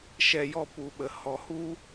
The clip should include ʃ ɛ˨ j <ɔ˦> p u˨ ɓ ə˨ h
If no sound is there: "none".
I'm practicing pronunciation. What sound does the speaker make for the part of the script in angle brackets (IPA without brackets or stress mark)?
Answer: ɔ˧